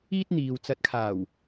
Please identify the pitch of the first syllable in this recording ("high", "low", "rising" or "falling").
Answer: high